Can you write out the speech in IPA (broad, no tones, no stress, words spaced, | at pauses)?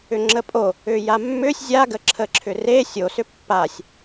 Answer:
ʏŋ͡ǁəpʼo | ʏjamːʏsʲ zʲaɡəǁʰəǁʰʏ re sʲosʏ pːasʲ